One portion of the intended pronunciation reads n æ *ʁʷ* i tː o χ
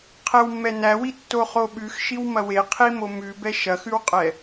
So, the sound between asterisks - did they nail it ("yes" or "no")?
no